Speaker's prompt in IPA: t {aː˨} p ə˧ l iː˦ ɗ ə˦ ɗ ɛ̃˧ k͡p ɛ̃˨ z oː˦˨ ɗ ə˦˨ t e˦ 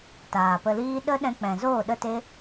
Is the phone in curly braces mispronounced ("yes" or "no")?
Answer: no